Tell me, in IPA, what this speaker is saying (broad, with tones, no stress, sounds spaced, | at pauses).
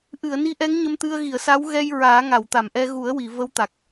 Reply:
ʔ ɨ˨˩˨ ə̯ n i˧˥ ʔ ɛ˧˥ ŋ ɲ ə˧ m t̪ ɨ˧ ə̯ ɣ i˨˩˨ ə̯ s a˧˥ w ɣ ɛ˧ j ɹ aː˨˩˦ ŋ a˨˩˨ w t̪ a˨˩˨ m ʔ ɛ˧ ɣ u˨˩˦ ə̯ w i˨˩˨ v ə˧˥ w t̪ a˨˩ k̚